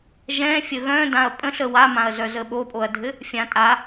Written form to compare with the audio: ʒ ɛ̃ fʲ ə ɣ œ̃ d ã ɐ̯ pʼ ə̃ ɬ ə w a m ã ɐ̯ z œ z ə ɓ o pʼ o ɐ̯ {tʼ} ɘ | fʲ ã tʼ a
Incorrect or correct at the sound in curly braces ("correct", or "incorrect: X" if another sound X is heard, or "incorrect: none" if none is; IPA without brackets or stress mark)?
incorrect: dʱ